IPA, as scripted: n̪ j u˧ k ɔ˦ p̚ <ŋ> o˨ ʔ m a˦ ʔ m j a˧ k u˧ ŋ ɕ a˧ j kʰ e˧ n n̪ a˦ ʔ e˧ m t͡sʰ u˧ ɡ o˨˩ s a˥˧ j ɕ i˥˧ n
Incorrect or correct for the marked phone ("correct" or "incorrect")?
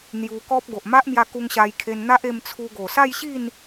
incorrect